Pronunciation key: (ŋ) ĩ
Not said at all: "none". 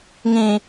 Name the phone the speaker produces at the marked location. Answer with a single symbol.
ŋ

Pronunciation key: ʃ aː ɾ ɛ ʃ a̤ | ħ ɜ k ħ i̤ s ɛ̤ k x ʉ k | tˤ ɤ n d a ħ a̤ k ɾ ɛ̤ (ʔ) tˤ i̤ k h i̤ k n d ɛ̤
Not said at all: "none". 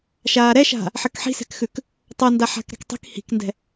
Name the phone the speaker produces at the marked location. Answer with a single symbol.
k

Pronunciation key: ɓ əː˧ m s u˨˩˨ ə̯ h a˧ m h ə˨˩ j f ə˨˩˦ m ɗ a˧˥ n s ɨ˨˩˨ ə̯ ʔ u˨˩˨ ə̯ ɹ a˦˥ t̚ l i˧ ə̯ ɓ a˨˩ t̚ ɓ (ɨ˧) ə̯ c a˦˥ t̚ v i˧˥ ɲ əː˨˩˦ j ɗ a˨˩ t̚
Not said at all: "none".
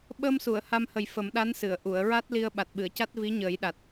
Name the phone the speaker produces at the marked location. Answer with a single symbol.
ɨ˨˩˨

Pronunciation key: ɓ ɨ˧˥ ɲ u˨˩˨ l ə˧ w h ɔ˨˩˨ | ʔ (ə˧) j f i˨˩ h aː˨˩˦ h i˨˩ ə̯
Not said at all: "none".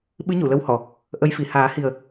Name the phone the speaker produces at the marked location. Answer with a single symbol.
ə˧˥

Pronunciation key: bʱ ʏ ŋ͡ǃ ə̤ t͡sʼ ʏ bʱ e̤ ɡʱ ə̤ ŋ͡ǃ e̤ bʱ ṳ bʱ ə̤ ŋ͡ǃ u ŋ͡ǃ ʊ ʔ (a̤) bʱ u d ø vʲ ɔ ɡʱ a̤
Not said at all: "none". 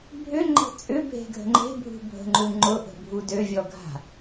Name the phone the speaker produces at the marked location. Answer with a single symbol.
ə̤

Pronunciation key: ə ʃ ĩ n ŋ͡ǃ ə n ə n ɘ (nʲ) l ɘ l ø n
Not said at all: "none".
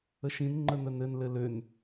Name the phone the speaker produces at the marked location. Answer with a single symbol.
n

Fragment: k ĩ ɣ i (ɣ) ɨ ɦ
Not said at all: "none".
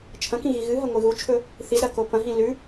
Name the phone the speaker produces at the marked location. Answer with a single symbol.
ɣ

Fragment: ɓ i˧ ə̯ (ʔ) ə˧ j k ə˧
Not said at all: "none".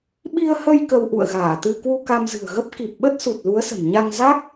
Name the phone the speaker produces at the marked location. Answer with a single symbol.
h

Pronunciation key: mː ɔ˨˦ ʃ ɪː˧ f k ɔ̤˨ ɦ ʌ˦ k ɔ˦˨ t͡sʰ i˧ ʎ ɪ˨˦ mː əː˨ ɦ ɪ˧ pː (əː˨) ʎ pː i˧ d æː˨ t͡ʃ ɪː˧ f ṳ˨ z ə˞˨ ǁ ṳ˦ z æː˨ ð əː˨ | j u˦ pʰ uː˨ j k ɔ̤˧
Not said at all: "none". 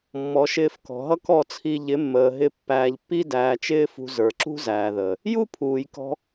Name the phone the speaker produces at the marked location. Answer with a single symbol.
æː˨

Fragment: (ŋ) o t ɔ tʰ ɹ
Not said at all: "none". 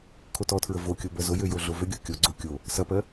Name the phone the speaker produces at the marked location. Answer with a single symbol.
kʰ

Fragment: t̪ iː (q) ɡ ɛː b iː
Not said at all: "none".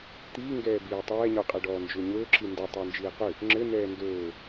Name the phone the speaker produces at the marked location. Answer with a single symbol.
ŋ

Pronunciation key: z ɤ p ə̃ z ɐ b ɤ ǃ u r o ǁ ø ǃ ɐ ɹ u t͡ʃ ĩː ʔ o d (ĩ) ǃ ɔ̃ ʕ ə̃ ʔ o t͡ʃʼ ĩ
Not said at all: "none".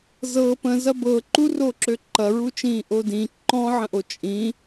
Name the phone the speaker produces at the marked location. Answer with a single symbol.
ĩ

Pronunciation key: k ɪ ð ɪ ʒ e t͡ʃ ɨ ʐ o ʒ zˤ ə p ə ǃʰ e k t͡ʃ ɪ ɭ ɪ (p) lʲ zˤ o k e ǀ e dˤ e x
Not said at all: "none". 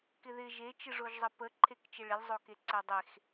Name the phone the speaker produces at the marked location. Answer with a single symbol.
none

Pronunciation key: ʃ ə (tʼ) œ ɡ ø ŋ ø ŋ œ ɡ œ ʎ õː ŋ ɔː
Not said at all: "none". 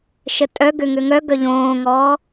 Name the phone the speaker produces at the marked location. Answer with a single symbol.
tʼ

